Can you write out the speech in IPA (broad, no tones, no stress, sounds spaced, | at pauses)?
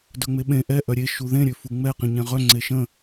d œ ŋ͡m e ɓ ẽ ʔ ɛ ʔ œ ɾʲ e ʃ u ð ẽ ɾʲ ø f u ŋ͡m ɛ q ĩ ɲ ɛ̃ ʁ œ ŋ͡ǀ e ʃ ə̃